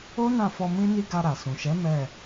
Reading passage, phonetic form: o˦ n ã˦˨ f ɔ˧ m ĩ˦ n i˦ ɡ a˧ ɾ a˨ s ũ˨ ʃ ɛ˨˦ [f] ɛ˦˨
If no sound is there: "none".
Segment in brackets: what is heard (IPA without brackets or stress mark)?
m